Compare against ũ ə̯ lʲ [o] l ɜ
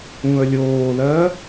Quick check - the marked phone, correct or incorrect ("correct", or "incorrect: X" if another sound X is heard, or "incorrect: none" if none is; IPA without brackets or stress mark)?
incorrect: oː